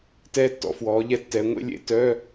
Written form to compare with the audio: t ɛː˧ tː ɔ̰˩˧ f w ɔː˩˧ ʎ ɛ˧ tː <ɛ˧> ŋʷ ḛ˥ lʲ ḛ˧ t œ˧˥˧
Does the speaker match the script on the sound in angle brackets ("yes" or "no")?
no